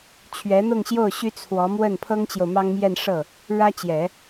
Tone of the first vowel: rising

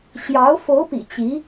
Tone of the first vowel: rising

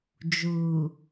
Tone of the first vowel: low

